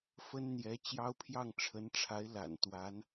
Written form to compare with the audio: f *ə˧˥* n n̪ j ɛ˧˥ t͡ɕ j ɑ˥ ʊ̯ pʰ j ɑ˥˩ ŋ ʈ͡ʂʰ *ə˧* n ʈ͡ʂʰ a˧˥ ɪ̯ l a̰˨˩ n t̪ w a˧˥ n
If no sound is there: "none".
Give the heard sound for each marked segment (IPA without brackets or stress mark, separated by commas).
ə˥, ə˧˥